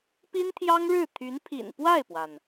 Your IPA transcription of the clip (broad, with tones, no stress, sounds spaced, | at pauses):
p i˥ n t̪ʰ j ɑ˥ ŋ ɻ ɻ̩˥˩ t̪ʰ y˧˥ n pʰ ḭ˨˩ n p w a˥˩ ɪ̯ p w a˩ n